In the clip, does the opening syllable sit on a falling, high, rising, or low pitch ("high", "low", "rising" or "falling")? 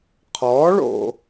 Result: rising